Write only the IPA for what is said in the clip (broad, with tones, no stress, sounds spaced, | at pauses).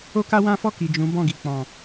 o˦ k a˦ w ã˦ f ɔ˦˨ k i˨ d͡ʒ ũ˨˦ b ɔ̃˦˨ ɡ i˨ k͡p ɔ̃˨